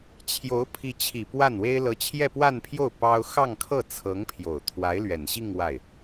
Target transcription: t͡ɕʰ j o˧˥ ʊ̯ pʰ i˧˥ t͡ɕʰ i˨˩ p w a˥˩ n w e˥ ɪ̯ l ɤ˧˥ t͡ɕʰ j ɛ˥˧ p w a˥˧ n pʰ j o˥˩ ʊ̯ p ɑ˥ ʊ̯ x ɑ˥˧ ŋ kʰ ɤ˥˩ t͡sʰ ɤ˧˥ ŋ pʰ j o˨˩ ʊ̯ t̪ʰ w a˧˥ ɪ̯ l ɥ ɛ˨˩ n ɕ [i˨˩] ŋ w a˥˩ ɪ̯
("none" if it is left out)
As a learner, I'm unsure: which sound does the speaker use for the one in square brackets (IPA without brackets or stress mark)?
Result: i˥˧